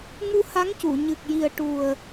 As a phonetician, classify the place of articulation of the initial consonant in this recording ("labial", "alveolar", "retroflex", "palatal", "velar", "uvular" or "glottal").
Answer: velar